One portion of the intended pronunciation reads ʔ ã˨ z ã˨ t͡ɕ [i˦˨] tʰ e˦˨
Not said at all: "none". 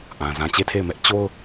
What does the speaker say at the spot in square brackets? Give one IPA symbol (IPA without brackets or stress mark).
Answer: e˦˨